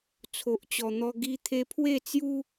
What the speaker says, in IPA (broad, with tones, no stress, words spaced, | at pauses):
t͡sʰo˨ʔt͡ɕɔ˨˩n̪ɔ˧ ɡi˧ t̪ʰe˧pʰwe˥˧t͡sju˦